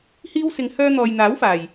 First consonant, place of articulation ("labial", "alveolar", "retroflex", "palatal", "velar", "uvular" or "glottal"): glottal